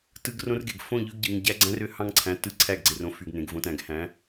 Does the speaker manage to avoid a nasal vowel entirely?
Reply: no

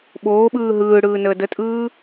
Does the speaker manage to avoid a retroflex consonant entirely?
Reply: no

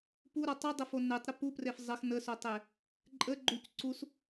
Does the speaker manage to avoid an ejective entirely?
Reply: no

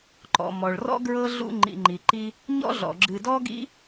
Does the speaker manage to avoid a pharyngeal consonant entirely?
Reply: yes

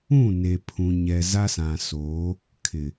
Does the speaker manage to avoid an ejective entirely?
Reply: yes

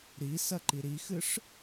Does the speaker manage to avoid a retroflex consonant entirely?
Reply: no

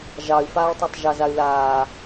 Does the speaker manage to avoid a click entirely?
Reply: yes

